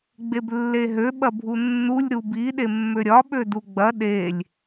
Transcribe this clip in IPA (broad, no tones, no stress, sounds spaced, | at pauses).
ɡ͡b e b lː e ɦ ø ɓ ɐ bʱ u nː u lʲ ɾ u b i ɗ e mː ø ɾʲ ɒ ɓ ø d u ɡ͡b ɐ ɗ e lʲ